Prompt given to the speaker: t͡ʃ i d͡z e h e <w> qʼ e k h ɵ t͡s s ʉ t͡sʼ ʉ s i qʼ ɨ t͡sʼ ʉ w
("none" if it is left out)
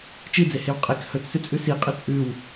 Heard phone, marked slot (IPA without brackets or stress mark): w